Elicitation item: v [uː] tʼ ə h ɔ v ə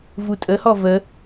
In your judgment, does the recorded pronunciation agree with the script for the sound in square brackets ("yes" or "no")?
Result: no